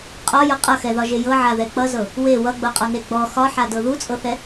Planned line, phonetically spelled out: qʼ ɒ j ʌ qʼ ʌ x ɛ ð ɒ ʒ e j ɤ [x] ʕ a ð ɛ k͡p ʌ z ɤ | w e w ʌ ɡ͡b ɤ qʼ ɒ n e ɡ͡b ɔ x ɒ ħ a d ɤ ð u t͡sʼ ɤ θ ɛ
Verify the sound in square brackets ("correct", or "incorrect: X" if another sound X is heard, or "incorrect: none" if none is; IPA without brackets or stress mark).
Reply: incorrect: none